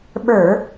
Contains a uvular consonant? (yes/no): no